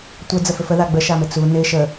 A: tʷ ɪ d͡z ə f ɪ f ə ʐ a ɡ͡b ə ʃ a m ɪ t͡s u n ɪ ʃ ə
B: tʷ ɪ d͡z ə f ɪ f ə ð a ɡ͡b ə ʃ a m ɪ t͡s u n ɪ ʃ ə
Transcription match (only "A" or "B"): B